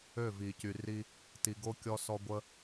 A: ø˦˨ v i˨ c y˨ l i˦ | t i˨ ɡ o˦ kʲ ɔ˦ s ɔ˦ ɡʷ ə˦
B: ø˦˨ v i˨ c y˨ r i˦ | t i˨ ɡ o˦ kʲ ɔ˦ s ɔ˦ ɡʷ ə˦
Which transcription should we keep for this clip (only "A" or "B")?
B